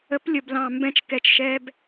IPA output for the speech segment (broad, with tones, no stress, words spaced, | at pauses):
ə˨˥plʲə˨˩blɑ̃˨˩ mbɛ̃˧t͡ʃkɛ˨˩t͡ʃʃɛː˧b